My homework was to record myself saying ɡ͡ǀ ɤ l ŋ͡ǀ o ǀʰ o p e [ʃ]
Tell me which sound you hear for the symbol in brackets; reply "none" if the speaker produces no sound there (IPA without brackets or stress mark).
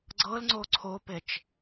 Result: t͡ʃ